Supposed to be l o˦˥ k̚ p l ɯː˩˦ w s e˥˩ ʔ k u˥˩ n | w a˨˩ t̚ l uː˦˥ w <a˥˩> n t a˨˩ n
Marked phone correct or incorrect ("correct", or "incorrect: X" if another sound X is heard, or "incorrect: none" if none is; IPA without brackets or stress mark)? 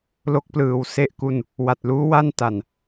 correct